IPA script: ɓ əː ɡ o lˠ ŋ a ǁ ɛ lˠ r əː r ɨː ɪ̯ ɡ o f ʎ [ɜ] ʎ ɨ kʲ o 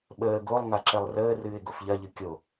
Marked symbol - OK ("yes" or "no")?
yes